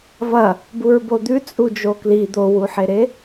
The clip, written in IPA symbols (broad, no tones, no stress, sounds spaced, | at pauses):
v ɐ | b u ɹ b o d̪ ʉ t͡sʼ u d͡ʒ o k l i d̪ o w u ħ e ɾ e